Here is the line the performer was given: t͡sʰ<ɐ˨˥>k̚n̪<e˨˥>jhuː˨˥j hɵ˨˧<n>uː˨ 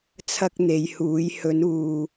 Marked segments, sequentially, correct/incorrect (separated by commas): incorrect, incorrect, correct